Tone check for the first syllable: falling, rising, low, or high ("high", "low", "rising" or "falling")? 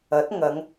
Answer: rising